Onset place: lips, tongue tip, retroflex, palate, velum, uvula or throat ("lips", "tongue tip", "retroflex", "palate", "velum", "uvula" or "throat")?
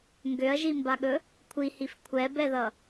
velum